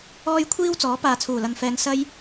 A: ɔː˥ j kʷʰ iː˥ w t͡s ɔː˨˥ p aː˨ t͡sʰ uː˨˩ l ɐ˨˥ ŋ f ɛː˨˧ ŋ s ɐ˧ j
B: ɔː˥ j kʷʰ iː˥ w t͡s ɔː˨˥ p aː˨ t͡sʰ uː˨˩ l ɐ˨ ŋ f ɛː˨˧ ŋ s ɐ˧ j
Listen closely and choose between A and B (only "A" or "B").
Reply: B